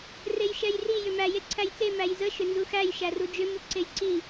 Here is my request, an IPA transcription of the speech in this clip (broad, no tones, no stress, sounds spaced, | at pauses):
r e j ʃ ɛ j r i j ʏ m æ j e ǀʰ æ j t͡s e m æ j z ə ʃ ʏ n z u x æ j ʃ æ r u d͡ʒ ʏ m u ǀ e j ǀ i